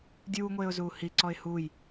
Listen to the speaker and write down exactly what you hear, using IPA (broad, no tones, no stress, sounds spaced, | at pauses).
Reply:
dʲ uː ŋʷ eː ʊ̯ z uː h i ǀ ɔ ɪ̯ h u j